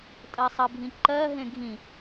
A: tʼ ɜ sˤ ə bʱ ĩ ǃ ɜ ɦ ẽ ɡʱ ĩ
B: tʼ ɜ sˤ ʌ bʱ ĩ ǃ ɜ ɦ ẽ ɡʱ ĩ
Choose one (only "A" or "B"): A